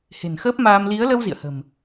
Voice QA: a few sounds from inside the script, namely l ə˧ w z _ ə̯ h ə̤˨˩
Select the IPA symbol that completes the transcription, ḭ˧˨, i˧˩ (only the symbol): ḭ˧˨